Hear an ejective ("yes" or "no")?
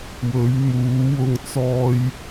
no